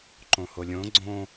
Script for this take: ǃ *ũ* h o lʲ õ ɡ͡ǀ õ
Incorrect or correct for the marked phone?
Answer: incorrect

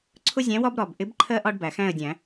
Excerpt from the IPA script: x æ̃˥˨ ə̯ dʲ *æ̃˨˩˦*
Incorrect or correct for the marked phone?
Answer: correct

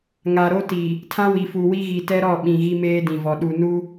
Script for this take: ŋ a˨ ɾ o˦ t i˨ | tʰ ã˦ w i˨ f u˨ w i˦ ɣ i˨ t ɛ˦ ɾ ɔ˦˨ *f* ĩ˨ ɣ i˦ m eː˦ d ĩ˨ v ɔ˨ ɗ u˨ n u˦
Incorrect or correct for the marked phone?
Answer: incorrect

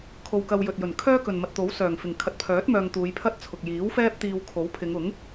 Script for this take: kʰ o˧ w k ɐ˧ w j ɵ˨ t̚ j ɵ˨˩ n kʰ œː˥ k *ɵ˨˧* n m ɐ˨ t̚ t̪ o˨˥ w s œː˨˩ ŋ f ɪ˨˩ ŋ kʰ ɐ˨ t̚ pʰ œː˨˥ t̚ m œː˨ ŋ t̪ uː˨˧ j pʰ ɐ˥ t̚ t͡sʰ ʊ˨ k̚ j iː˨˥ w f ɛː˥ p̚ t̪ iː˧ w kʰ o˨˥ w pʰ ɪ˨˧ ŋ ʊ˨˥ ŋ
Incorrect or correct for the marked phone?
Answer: incorrect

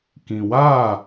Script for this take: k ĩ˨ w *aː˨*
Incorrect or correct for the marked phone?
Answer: incorrect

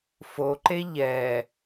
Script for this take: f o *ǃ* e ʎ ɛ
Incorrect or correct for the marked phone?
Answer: correct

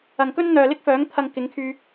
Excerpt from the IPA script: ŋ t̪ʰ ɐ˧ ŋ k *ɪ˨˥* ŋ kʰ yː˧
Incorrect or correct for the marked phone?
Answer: correct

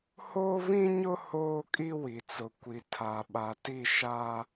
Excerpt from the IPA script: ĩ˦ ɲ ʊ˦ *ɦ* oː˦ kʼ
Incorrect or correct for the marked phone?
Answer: incorrect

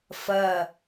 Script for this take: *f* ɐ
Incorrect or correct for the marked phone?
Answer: correct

